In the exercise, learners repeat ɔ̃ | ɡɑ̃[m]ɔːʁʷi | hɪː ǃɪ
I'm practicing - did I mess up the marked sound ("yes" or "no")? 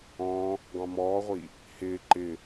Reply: no